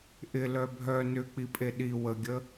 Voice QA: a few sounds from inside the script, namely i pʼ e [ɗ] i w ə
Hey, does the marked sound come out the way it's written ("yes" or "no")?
yes